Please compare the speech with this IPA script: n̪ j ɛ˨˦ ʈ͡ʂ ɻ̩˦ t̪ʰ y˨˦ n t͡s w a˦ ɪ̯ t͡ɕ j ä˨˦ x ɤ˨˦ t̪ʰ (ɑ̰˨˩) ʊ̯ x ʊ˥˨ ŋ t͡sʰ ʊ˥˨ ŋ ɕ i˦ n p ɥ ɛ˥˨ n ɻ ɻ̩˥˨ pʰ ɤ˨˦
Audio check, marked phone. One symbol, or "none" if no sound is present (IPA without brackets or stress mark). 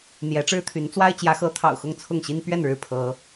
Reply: ɑ̰˨˩